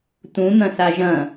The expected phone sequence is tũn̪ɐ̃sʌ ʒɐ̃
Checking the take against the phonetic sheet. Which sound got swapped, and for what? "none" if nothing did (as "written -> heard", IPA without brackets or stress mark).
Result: ʌ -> a